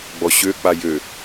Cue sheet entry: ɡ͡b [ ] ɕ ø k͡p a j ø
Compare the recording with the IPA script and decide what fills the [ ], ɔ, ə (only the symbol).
ɔ